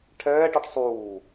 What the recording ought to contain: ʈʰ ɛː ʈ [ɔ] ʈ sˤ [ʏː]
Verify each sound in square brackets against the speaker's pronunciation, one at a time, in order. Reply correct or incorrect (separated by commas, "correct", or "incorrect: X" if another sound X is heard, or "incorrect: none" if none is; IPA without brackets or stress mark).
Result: correct, incorrect: uː